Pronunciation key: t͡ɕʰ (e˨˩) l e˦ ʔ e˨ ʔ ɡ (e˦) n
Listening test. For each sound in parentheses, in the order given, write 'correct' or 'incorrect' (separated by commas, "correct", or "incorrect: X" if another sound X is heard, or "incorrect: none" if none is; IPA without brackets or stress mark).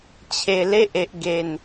correct, incorrect: e˨˩